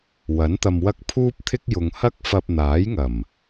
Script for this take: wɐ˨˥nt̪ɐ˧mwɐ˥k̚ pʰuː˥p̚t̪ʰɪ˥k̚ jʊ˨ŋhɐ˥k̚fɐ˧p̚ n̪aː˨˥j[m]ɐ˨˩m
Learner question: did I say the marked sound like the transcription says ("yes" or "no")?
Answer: no